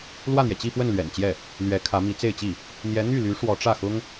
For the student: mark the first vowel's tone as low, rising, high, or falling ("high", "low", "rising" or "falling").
falling